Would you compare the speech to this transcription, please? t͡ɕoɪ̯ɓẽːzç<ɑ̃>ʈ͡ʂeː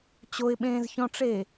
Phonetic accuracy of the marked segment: incorrect: ɔ̃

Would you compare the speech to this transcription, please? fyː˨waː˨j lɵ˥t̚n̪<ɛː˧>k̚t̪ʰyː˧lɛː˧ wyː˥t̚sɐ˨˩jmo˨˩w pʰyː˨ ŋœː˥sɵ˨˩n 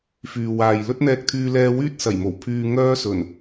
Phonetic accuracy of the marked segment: correct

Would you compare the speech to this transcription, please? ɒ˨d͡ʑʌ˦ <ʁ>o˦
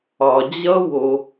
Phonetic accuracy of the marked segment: incorrect: w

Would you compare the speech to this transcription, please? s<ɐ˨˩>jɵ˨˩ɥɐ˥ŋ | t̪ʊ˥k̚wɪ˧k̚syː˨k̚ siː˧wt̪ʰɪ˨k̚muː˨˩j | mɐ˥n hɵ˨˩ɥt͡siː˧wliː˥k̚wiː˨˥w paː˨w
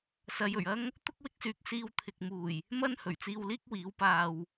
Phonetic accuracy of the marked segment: incorrect: ɐ˨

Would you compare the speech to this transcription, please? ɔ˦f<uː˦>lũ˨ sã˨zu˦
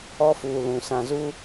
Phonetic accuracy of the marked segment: incorrect: uː˨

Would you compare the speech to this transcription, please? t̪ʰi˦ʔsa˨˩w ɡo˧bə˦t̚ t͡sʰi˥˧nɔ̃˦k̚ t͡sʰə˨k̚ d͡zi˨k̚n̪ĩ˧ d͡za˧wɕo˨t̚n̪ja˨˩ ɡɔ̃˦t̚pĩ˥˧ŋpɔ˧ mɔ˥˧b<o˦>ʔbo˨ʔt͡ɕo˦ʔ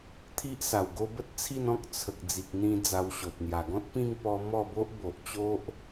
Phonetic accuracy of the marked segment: correct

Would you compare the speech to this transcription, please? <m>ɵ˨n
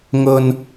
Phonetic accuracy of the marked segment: incorrect: ŋ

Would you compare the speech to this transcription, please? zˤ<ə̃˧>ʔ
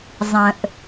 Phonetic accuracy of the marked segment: incorrect: ə̃˩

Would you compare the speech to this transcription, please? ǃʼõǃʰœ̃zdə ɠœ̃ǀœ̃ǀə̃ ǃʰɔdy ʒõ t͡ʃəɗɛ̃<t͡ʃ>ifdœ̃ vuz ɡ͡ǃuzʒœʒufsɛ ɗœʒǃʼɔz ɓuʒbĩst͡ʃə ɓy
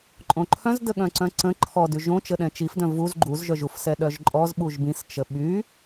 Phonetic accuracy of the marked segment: correct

